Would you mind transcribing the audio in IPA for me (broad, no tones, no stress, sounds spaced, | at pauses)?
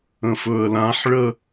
ə̃ f ɵ ə̯ l ã ħ ɭ ə